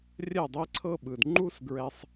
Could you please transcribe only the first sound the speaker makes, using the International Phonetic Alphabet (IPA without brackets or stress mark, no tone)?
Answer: rʲ